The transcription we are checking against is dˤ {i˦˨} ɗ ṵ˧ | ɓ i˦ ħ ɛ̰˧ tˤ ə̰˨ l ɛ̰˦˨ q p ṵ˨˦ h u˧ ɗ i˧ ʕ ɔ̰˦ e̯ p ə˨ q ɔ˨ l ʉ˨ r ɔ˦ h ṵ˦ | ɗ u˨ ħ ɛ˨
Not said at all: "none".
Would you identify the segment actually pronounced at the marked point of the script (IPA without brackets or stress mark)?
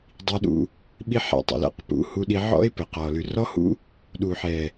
i˧